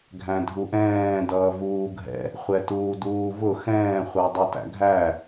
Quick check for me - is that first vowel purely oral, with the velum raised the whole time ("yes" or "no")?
no